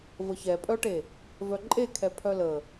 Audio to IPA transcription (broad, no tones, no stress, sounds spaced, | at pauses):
v ə ç ɛ pʼ œ ʈ e | v œ ǃʼ e kʰ ɛ pʰ œ l ə